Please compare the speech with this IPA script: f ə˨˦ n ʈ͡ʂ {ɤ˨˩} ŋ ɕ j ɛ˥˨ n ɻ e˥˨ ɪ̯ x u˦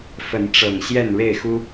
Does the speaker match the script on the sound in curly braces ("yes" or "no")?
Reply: yes